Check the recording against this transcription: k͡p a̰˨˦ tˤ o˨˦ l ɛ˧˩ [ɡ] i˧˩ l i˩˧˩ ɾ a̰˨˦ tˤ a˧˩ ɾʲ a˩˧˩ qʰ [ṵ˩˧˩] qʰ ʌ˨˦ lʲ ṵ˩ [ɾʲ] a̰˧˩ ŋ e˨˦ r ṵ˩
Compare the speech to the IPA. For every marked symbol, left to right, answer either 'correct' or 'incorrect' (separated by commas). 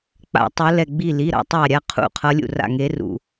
incorrect, incorrect, incorrect